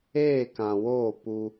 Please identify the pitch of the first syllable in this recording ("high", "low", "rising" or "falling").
falling